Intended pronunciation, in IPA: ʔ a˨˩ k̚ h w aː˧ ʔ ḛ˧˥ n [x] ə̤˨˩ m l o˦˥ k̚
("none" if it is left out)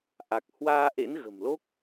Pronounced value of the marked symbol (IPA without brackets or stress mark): ɣ